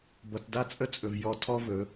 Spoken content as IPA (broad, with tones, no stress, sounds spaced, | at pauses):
b ʌ˧ t d a˦ t͡sʼ ə˦˨ t͡sʼ ɵ˨ v j ɔ˧ tʰ ɔ˦ v ɵ˨˦